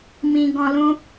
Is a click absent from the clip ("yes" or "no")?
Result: yes